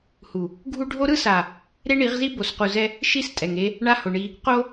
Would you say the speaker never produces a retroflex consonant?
no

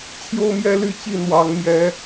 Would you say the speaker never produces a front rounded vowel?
no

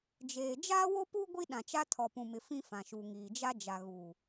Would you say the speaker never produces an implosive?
no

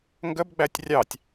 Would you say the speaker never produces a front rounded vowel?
yes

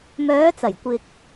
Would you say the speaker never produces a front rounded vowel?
no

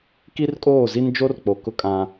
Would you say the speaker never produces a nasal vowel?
no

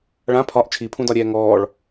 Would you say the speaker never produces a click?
yes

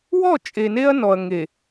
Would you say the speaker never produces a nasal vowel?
yes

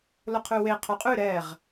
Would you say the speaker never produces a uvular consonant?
no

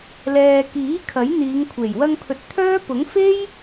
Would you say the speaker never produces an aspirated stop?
no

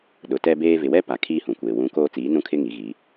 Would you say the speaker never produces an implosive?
no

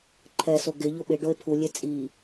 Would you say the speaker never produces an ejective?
no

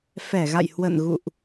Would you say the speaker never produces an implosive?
yes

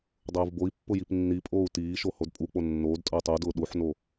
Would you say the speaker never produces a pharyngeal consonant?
no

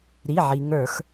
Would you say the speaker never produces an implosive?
yes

